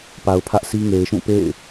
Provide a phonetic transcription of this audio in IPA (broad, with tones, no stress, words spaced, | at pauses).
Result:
pa˨ʊ̯pʰä˦ʔsi˦ ŋe˨ɪ̯ʃũ˦˨pḛ˦˨ɪ̯